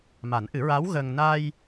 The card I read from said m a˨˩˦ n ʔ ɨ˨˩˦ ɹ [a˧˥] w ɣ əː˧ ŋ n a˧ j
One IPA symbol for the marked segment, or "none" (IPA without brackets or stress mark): a˧˥